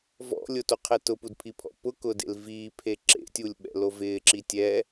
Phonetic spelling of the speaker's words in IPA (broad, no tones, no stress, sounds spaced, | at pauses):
v ɔ̰ lʲ ʊ t o qʰ ɛ t ʊ p u d pʰ i pʰ ɔ̰ p ʊ k ʊ d ḛ l v iː pʰ e ǁ ḛ tʲ u lʲ ɓ ɛ̰ l o v ɪː ǁ i tʲ ɛ